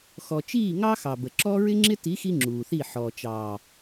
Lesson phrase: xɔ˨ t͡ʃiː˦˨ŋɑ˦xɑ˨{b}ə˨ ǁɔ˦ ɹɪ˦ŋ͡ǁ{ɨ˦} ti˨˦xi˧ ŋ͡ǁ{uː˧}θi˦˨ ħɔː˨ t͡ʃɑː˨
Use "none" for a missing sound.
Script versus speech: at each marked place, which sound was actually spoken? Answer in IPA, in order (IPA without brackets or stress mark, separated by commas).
b, ɪ˦, uː˨